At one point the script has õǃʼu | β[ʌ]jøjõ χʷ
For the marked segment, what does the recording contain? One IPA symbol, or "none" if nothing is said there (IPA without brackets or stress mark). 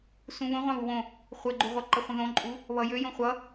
ʌ